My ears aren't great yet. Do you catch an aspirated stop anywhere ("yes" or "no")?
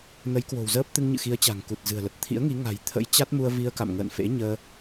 yes